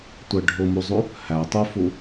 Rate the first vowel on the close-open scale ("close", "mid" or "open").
mid